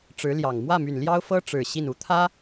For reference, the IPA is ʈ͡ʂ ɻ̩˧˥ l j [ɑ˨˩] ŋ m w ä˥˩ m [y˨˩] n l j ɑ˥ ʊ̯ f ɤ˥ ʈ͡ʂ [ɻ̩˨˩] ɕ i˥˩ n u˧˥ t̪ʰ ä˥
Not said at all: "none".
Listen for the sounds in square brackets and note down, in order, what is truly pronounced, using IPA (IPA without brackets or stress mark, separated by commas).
ɑ˨˩, y˨˩, ɻ̩˨˩